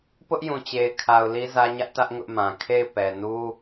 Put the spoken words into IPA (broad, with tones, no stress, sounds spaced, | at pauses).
p ʊ˦ ʔ j ũ˨ t͡ɕ e˨ ɪ̯ kʰ a˨ ʊ̯ l i˦ z ä˦ ɲ ä˦ ʔ t ä˦ ʔ ŋ ʊ˦ ʔ m ã˨ kʰ e˦˨ ɪ̯ p ɛ˨ n u˦